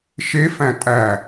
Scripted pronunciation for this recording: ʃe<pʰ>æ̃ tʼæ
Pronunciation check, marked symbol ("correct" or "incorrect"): incorrect